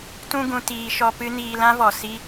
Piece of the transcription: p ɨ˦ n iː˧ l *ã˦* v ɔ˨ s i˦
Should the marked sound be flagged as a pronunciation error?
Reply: no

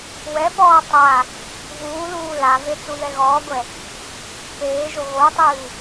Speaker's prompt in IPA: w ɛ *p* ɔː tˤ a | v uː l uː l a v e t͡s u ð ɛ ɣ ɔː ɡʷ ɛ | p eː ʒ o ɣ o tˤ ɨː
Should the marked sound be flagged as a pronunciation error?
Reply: no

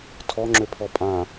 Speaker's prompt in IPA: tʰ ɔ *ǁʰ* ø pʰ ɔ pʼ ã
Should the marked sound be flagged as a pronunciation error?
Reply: yes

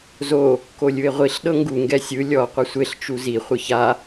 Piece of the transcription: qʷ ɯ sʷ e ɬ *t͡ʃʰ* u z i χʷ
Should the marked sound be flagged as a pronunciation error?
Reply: yes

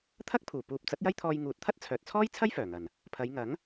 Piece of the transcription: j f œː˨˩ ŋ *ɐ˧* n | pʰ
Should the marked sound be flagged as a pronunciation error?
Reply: yes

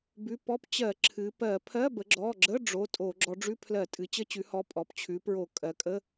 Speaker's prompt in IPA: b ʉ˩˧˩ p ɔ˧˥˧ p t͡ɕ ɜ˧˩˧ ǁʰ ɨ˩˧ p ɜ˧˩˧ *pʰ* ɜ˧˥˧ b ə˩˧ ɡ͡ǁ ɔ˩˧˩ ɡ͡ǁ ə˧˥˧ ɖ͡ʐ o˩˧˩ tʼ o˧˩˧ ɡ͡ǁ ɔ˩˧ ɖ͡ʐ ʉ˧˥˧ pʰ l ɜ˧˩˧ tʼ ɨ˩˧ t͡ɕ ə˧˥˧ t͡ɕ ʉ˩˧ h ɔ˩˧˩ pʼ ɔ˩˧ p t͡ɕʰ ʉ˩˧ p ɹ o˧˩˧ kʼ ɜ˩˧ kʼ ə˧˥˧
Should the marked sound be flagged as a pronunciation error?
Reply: no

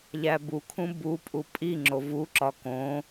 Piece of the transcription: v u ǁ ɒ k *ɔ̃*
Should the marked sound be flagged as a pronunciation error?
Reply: yes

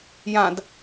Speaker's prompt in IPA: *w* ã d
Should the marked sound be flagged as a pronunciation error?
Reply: yes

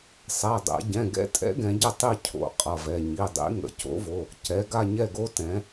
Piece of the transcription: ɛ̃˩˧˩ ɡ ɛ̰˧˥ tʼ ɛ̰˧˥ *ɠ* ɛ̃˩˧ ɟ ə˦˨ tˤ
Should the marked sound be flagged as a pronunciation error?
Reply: yes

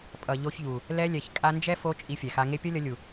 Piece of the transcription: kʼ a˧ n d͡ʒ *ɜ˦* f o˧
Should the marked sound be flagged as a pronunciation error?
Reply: yes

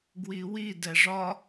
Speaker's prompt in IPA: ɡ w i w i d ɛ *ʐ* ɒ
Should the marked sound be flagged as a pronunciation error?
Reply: no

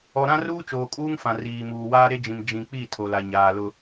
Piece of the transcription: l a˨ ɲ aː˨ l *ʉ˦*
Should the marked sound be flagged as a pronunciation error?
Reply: yes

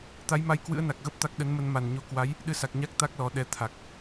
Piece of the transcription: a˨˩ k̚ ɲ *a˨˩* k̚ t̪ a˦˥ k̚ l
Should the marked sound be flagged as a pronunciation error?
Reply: yes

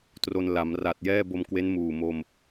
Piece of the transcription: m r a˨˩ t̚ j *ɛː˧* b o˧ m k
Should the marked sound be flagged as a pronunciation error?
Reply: yes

